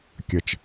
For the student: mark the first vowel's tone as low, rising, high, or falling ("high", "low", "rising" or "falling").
low